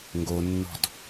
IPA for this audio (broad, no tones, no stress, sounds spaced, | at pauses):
ŋ ɡ o nː ɔ̤ d